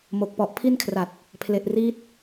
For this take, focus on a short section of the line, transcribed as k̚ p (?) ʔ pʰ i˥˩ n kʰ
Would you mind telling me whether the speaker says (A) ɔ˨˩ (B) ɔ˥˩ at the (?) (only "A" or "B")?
A